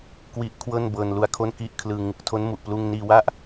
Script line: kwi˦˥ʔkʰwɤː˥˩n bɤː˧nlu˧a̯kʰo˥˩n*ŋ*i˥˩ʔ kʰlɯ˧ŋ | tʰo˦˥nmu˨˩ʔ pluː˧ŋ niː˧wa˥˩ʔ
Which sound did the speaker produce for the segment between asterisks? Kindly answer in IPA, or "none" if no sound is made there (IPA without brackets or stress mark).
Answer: k